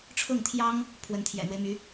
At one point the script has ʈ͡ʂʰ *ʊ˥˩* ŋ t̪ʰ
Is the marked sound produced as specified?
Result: yes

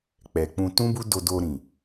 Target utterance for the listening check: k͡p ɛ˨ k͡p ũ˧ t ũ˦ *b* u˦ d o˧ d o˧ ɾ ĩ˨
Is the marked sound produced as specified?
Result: yes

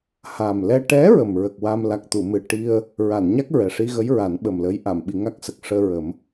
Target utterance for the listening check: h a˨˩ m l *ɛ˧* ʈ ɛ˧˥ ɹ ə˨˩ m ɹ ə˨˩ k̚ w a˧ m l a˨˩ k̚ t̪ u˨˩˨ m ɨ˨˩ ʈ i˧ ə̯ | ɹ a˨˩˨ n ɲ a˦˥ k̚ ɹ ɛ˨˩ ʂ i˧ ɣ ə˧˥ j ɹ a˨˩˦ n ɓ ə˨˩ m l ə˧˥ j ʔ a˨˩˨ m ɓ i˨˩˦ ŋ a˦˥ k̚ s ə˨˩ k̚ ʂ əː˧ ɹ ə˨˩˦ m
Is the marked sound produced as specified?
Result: yes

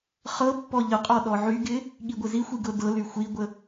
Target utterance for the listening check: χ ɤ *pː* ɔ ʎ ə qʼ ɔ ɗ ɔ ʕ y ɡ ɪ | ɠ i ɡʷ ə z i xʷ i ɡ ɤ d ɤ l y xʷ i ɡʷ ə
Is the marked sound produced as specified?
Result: yes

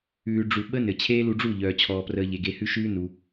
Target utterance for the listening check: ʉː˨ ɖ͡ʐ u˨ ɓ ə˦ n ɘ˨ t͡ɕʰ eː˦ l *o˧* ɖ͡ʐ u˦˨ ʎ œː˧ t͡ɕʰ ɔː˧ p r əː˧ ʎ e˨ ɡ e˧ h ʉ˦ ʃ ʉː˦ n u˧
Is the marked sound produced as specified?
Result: no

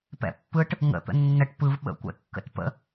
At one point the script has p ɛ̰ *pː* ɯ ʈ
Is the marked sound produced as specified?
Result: yes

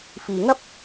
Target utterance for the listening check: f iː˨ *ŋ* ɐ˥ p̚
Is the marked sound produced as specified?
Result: yes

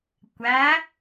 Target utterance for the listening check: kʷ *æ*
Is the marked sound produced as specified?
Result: yes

